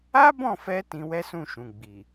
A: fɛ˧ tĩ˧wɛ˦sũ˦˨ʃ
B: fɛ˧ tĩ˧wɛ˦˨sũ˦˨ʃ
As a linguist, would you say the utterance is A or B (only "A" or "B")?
A